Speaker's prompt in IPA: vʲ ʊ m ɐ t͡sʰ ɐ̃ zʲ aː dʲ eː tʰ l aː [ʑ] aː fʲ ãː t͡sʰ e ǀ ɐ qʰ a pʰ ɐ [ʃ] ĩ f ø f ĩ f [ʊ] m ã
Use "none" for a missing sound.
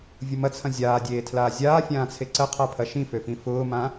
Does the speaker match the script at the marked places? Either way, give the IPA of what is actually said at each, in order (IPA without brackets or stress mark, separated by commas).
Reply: zʲ, ʃ, ʊː